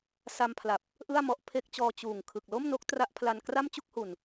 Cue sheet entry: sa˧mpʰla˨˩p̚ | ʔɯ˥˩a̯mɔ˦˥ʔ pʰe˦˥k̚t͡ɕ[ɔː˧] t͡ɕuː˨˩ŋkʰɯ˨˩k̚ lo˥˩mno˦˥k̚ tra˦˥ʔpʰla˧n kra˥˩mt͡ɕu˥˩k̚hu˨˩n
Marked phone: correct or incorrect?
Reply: correct